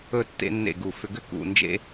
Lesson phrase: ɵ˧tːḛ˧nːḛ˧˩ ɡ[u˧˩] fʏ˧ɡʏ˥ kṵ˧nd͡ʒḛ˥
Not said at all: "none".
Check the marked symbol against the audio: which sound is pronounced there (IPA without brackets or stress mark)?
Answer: u˧˩